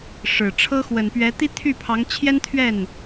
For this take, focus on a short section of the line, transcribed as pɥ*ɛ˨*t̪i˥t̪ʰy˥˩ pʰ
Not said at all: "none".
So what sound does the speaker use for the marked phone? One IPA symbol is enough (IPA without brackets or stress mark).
ɛ˧˥